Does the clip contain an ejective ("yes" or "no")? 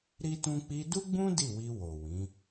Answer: no